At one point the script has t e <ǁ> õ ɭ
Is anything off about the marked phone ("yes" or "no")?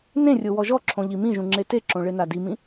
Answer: no